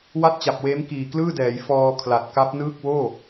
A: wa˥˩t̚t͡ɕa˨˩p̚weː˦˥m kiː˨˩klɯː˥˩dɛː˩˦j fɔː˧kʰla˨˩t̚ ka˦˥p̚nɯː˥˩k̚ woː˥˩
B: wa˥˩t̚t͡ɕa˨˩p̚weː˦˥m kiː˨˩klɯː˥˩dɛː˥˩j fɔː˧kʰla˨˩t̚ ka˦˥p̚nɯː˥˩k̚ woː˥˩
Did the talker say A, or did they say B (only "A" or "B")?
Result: A